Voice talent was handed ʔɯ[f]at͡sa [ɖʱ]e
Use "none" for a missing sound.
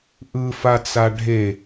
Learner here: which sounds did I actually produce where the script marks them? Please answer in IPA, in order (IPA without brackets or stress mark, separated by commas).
f, ɖʱ